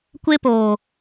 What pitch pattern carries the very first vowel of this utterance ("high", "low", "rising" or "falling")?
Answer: high